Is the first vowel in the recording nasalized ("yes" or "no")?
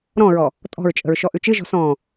yes